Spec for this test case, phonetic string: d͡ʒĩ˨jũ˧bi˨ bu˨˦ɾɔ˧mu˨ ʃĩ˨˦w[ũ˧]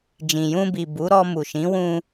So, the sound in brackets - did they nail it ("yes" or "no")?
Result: yes